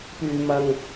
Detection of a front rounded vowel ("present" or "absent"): present